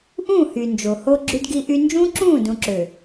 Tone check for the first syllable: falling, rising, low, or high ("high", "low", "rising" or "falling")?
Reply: falling